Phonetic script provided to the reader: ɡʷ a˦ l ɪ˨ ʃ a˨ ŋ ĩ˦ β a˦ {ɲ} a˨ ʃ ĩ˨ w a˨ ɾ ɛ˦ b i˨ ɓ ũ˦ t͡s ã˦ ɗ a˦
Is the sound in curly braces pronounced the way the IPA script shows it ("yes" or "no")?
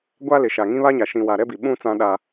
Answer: yes